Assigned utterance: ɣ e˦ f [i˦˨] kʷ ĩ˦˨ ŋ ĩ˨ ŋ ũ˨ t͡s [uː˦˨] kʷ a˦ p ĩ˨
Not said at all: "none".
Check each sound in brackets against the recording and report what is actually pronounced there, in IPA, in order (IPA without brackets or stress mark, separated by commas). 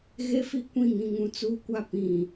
i˦, uː˦